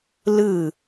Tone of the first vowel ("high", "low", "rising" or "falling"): falling